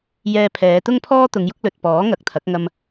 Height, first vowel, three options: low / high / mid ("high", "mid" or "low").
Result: mid